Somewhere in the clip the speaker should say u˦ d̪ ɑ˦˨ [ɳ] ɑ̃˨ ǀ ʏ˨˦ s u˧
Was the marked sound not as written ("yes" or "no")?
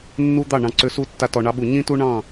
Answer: no